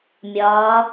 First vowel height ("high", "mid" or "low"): low